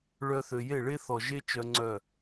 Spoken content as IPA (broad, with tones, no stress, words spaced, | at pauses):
ɭœ˧θø˨je˦˨ ɭe˦θɔ˨ʒe˦ t͡ʃœ˦ŋ͡ǀœ˦˨